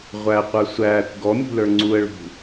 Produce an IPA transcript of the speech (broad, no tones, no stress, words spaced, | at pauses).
ʁʷæqʷə˞ sʷæːkʷ ɡɔmʲṳlə˞ ŋ͡ǀuə̯ɭṳ